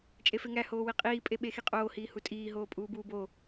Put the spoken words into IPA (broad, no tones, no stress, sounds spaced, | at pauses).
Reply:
t͡ʃʼ e f e ŋ æ h oː w i qʼ iː pʼ e ɓ e x i qʼ oː h iː h u tʼ iː ɦ oː pʼ uː b uː b o